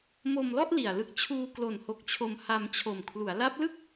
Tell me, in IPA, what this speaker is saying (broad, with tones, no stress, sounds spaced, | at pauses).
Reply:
m o˧ m l ɔ˥˩ ʔ l i˨˩ a̯ l ɯ˦˥ k̚ t͡ɕʰ uː˧ k l o˨˩ n h o˨˩ k̚ t͡ɕʰ o˧ m h a˧ m t͡ɕʰ o˨˩ m kʰ l u˩˦ a̯ l a˦˥ p̚ l ɯ˥˩ k̚